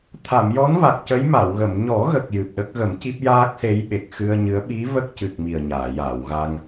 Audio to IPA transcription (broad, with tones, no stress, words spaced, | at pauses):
t̪ʰa˨˩˨mjɔ˧˥nva˨˩k̚ cə˧˥jma˨˩˨wɣə˨˩˨m ɲɔ˨˩˦ɣə˨˩k̚ jɨ˨˩p̚ɗə˦˥k̚ ɣə˨˩˦mci˦˥p̚jaː˦˥k̚se˧˥j ɓe˨˩k̚xɨ˧ə̯ɲɨ˧˥ə̯ ɓi˧˥ və˦˥k̚cɨ˨˩k̚ mi˨˩ə̯ɲaː˨˩˨jaː˨˩˨w ɣa˧ŋ